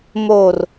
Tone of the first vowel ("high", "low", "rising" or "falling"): low